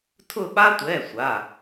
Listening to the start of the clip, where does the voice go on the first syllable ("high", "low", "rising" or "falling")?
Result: falling